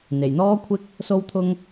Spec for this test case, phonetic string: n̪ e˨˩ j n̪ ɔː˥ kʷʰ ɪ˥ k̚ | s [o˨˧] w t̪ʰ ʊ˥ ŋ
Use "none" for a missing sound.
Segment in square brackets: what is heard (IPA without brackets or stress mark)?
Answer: o˥